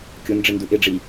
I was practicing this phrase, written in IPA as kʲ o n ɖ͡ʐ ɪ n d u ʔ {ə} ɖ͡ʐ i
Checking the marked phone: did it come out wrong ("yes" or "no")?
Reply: yes